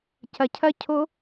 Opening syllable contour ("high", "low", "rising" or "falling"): low